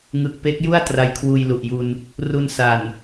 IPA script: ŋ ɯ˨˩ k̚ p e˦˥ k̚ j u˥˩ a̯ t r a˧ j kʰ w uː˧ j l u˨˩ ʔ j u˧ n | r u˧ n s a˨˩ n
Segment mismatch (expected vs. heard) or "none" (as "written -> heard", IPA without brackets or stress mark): none